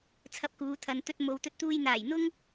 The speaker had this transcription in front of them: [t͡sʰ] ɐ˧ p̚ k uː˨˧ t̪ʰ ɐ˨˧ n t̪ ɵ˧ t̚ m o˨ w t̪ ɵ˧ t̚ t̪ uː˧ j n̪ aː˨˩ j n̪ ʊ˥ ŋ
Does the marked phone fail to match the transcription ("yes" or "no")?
no